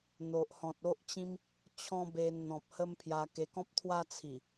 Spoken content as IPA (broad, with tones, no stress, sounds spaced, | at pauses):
n̪ o˨ ʔ h ɔ̃˨ t̚ o˦ ʔ t͡ɕ ĩ˦ m | t͡ɕʰ ɔ̃˦ b e˧ n n̪ ɔ̃˨ p̚ h ə˦ m pʰ j a˧ k e˧ k ɔ̃˦ p̚ t̪ʰ w a˦ t͡sʰ i˨˩